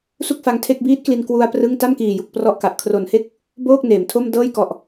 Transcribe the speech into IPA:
s u˥˩ k̚ f a˧ ŋ tʰ e˥˩ k̚ b iː˦˥ t̚ k l i˧ n k w u˧ a̯ p r ɯ˥˩ ŋ t a˥˩ m k iː˨˩ j u˨˩ k̚ p r ɔ˥˩ ʔ k a˨˩ ʔ kʰ r o˨˩ n h e˥˩ k̚ | b oː˥˩ k̚ n eː˩˦ m tʰ o˥˩ m d ɤː˥˩ j k ɔ˨˩ ʔ

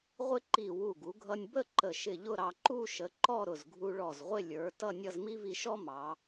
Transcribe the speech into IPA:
ʁʷ ɪ˥ ǃ i˧˩ w u˧˩ ɡ u˩˧ ɡʱ ʌ˧ nʲ b ə˥˧ ǃ ə˧˩ ʃ ɪ˧˩ ʎ ʊ˥˧ ɾ ɑ˧ ǃ u˥˧ ʃ ə˩˧ ǃ ɔ˥˧ ɾ ʊ˧˩ z ɡʱ u˧ ɭ ɔ˧˩ z ʁʷ ɪ˥˧ lʲ ə˞˩˧ t ʌ˥˧ nʲ ʌ˥˧ z m i˥ v i˧ ʃ ɔ˥ m ɑ˩˧

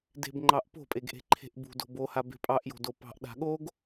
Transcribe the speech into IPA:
d e̤ b ŋ͡ǃ ɑ ʔ p o̤ pʼ e ɡ ʔ e̤ ǃʰ e̤ ʔ b ṳ d o̤ b o h a b e̤ pʼ ɑ ʔ j o̤ d o p ɑ̤ ʔ ɗ a̤ ɠ o ɡ

